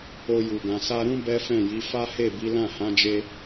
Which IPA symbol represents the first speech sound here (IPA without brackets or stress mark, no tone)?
o